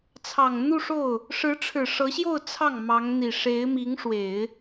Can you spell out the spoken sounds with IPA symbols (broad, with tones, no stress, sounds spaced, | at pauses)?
t͡sʰ ɑ˨˩ ŋ n̪ u˥˧ ʂ o˥˩ ʊ̯ | ʂ ɻ̩˧˥ ʈ͡ʂʰ ɻ̩˨˩ ʂ ɤ˧˥ ɕ j o˥˧ ʊ̯ t͡sʰ ɑ˥˩ ŋ m ɑ˧˥ ŋ n̪ i˨˩ ʂ e˧˥ ɪ̯ m i˧˥ ŋ ʂ w e˨˩˦ ɪ̯